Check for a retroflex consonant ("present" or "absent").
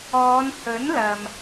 absent